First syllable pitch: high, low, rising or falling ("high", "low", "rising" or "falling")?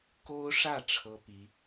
high